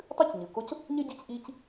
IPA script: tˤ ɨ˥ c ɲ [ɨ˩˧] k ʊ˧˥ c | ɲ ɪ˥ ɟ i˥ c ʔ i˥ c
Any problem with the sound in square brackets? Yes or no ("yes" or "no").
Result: yes